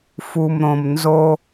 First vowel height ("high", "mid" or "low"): high